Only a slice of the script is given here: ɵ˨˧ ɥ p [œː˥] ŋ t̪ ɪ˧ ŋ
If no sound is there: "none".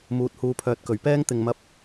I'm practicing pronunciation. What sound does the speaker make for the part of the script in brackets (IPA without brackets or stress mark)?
ɛː˥